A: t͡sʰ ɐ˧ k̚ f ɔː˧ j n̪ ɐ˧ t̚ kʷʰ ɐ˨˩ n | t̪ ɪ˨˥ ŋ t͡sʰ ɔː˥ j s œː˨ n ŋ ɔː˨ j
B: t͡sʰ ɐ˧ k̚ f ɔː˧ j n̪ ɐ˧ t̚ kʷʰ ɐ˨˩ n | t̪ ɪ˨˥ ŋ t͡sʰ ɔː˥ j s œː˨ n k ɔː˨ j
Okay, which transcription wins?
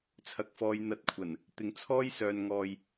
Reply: A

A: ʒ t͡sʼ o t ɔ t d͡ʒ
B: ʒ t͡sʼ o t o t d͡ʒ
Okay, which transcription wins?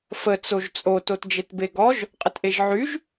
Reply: B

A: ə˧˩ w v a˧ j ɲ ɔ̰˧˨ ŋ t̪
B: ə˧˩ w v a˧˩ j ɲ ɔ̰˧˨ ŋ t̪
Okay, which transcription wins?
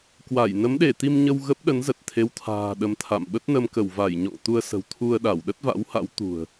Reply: B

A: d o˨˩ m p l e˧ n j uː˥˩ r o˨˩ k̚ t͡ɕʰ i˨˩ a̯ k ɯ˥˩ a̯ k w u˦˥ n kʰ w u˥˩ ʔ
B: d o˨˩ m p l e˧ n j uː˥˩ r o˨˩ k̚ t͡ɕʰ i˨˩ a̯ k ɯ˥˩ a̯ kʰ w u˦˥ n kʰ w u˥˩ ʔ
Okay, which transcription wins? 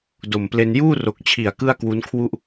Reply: A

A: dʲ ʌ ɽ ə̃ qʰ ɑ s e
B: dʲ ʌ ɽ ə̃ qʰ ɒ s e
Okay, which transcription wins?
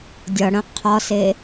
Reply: B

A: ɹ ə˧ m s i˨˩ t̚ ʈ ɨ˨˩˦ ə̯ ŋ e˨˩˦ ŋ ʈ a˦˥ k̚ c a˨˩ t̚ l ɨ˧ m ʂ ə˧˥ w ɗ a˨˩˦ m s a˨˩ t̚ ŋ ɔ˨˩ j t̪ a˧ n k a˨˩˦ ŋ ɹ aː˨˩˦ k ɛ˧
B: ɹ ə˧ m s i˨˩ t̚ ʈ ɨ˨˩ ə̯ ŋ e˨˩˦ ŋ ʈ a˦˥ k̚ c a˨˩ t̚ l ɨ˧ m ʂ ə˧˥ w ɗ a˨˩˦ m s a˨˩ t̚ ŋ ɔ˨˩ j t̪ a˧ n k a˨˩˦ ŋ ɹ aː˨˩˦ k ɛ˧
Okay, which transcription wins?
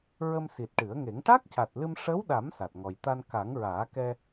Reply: A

